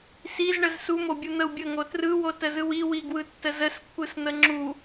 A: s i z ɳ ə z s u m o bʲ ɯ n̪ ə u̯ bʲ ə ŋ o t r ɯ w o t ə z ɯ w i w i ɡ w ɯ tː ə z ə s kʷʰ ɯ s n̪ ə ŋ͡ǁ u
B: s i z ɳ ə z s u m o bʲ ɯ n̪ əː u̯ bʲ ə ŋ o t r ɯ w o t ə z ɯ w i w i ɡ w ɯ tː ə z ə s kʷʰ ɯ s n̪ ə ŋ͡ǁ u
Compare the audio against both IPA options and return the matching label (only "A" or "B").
A